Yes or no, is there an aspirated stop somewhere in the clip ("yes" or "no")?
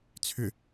yes